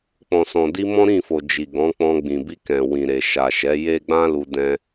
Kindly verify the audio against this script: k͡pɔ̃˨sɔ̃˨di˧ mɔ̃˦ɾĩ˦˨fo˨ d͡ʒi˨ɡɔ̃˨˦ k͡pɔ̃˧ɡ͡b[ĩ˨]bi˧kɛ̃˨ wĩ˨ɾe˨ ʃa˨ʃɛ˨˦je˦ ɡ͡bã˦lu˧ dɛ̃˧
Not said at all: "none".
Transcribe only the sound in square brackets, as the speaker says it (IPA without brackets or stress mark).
ĩ˨